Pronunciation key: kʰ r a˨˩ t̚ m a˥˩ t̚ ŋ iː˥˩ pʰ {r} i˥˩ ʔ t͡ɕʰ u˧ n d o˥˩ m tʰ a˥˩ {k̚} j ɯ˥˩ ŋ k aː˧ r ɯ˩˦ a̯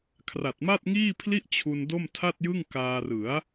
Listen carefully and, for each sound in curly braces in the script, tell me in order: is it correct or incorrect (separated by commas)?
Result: incorrect, incorrect